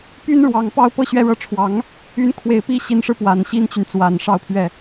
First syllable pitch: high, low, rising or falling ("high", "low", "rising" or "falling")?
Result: high